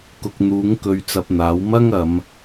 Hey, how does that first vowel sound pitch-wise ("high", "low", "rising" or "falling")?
low